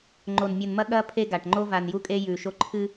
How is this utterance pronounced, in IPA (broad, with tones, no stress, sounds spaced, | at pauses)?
ŋ͡ǃ o˨ n mʲ ɨ˨ n m ɐ˦ ɠ ɐ˦ pʰ e˦ ɡ a˨ ʈ ŋ͡ǃ o˦ v a˨ n j u˦ kʼ e˦ j ʉ˨ ʃ o˦ ǃʰ ɨ˦